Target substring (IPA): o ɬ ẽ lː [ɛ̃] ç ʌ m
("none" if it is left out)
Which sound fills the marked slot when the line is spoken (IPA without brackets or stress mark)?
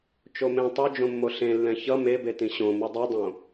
ɛ̃